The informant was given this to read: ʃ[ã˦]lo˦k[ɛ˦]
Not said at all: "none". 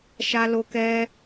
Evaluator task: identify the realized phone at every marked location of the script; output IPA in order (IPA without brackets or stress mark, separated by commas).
a˦, ɛ˦